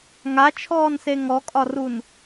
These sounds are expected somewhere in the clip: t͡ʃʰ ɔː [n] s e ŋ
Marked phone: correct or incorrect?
correct